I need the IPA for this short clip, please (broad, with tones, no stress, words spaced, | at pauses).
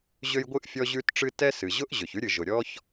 ʑø˥jɡʷɨ˥ʔ fʲɔ˥ʑʉ˥tʈ͡ʂɨ˥ tɛ˥ sɨ˩ʑʊ˥ʔ ʑø˩çʉ˥ɾʲɨ˩ ʒʊ˩ ɾʲɔ˥ç